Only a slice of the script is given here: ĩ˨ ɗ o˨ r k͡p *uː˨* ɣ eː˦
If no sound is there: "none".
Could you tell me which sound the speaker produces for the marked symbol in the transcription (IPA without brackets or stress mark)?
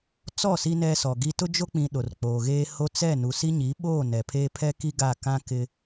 oː˨